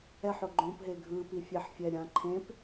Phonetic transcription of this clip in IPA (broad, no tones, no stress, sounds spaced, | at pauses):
ɛ ħ o ɡ͡ǃ õ p ɦ e ɡʱ ɯ p i fʲ e ħ fʲ ɛ ɾʲ ã ǃʰ ẽ p